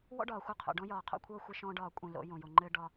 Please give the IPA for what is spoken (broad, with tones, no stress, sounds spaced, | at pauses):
w ɔ̰˦ ɖ ɒː˨ xʷ ɤ˦˨ qʰ o̰˨ ɖ ɔ̃˦ j ɒː˨ qʰ o̰˦ kʷʰ ɤː˦ xʷ e˦ ʃ ɔ̃ː˦ ɖ ɒː˦˨ kʷʼ ẽ˦˨ l o̰˨˦ j õ˨ j o˨ ŋ͡ǃ ɘ˦ ɖ ɒ˦